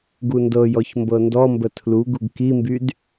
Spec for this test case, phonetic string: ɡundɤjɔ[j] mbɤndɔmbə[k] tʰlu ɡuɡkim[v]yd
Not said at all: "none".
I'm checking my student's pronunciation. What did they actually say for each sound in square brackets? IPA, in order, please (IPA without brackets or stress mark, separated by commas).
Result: ç, none, b